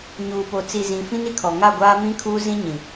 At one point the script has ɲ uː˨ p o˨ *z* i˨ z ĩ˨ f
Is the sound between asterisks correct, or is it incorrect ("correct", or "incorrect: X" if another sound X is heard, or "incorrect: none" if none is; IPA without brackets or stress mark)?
incorrect: t͡s